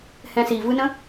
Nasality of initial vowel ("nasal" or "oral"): nasal